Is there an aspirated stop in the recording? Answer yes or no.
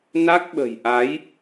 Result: no